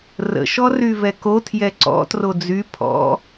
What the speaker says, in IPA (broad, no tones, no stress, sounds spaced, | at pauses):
r ə̰ ʃ ɔ r y v ɛ k o tʰ j ɛ ǀ ɔ̰ t r o d͡z y pʰ ɔ̰